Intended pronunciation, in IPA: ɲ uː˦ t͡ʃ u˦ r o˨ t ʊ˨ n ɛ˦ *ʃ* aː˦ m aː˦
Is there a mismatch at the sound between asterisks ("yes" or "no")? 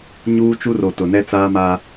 yes